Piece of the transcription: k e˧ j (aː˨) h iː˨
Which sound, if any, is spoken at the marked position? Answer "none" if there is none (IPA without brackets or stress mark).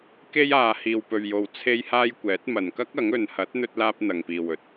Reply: aː˨